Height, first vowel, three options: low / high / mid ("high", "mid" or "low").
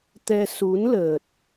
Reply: mid